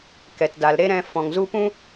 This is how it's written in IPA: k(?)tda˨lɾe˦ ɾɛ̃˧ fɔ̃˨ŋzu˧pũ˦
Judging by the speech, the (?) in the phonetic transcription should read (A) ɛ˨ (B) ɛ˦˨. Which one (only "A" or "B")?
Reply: A